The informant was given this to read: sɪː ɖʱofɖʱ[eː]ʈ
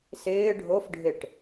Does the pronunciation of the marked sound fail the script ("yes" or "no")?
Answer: yes